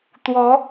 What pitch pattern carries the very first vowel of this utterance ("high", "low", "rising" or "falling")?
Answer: rising